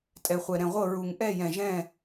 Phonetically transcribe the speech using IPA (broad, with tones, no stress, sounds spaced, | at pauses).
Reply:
tʼ ɛ˨ χʷ ɛ˨ ɾ ɛ̃˨ ʁʷ ɤ˦˨ ɹ u˨ ŋ ʔ ɛ˦˨ j ɛ̃˨ ʒ ɛ̃˦˨